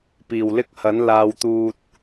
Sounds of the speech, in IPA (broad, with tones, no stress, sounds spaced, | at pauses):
p iː˨˩ w l ɪ˥ k̚ h ɐ˨˥ n l aː˨ w t̪ uː˧ t̚